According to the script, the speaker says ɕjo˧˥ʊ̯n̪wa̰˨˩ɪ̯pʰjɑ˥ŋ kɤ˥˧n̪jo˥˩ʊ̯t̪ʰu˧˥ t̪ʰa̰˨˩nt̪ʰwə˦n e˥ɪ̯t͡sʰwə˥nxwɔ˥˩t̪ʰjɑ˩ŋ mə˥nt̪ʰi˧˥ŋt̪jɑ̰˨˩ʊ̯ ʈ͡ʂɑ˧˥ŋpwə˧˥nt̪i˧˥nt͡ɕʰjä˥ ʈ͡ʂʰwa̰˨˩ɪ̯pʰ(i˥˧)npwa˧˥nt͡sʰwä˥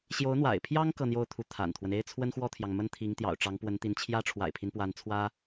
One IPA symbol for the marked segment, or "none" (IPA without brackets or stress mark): i˦